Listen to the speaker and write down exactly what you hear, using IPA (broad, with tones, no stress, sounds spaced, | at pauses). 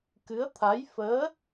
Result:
k ɨ˧˥ ə̯ t̪ʰ a˧˥ j f əː˧˥